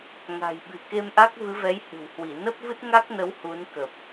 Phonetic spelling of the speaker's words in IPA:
ŋ a̤˨˩ j ɓ ɨ̤˨˩ k e˧ m ʔ a˦˥ k̚ v ɨ˨˦ v ɛ˨˦ j h ɨ̤˨˩ w h w i˧˩ n ə˦˥ p̚ v ɨ˦˥ t̚ ŋ a˦˥ k̚ n ə˨˦ w h u˨˦ n k ə˨˩ p̚

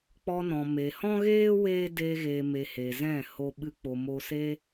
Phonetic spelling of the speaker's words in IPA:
k͡p ɔ˧ n ɔ̃˨ m e˨ h ɔ̃˦ ɣ eː˦ w eː˦ d eː˧ ɣ eː˨ m e˨ h e˨ z ɛ̃˦˨ h o˧ ɓ ɨ˧ k͡p o˨ m o˧ s e˧

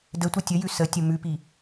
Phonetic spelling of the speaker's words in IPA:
d ə tʷ ʌ tʲ ə j ʉ s ə tʲ ə m ʉ p i

